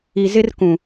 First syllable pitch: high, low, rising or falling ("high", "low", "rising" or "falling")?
low